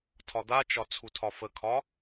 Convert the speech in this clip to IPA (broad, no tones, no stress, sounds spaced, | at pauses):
tʰ ɒ d̪ a t͡ʃ ɒ t͡sʰ u tʰ ɒ f ə kʰ ɒ